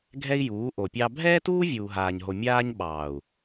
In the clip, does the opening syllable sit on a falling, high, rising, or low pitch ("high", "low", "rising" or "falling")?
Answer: high